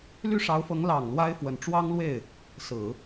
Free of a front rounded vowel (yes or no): no